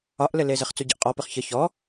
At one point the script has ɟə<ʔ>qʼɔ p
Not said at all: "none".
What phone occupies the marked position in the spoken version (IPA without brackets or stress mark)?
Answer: ʔ